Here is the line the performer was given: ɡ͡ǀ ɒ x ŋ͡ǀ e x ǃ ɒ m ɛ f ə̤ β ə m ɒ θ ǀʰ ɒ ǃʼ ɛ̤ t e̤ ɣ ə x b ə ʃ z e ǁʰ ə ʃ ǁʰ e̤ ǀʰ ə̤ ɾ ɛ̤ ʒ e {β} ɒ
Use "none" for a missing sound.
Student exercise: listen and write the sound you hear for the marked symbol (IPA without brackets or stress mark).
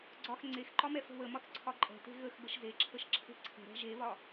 β